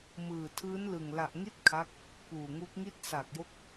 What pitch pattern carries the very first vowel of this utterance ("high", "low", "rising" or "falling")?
low